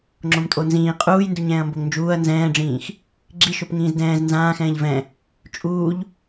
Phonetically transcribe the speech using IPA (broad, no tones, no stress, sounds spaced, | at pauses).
ŋ͡ǁ õ m tʼ o n z ĩː qʼ uː j n d u ɲ ɛ̃ː ɐ̯ m b o ŋ n d͡ʒ uː ɐ̯ n z ɛ̃ː ɖ͡ʐ ĩː x | ɡ͡ǁ i ʃ o p ŋ ĩː z d ɛ̃ː z n z ãː x ɛ̃ː ʎ v ɛ̃ | t͡ʃʼ uː ʎ